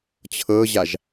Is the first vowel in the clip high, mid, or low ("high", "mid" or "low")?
mid